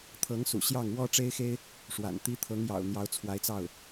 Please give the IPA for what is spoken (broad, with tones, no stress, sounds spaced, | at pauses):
t̪ʰ ɤ˧˥ ŋ s ṵ˨˩ ɕ j ɑ˥˩ ŋ w ɔ˥ ʈ͡ʂ e˥ ɪ̯ x e˥ ɪ̯ | ʂ w a̰˨˩ n t̪ i˧˥ t̪ʰ ɤ˧˥ ŋ j ɑ̰˨˩ ʊ̯ n̪ j ɑ˧˥ ʊ̯ t͡sʰ w a˧˥ ɪ̯ t͡s ɑ˥˩ ʊ̯